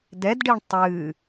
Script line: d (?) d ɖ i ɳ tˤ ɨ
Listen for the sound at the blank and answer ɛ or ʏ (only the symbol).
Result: ɛ